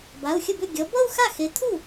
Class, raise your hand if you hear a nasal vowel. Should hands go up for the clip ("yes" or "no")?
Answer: no